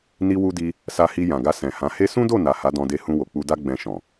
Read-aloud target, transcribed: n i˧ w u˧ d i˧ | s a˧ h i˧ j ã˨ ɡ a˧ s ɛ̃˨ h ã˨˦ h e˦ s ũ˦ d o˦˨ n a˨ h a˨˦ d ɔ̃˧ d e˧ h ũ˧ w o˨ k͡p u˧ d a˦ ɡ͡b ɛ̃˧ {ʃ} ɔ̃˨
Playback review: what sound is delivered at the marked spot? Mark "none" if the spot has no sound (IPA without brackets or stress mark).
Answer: ʃ